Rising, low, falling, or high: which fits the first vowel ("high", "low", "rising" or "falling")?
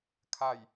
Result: low